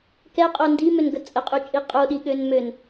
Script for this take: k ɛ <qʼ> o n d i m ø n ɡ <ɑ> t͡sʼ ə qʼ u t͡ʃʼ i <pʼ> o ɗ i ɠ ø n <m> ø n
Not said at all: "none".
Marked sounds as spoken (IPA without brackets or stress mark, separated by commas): qʼ, ə, qʼ, m